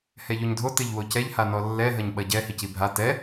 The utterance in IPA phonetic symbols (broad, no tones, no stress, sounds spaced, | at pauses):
h ɛ ʎ o ɲ dʱ o t ɘ ʎ w o c ɛ ʎ h a n ɔ lː ɛ ɦ ɐ ɲ ɓ ɐ ɟ ɛ h i c i bʱ a t ɛ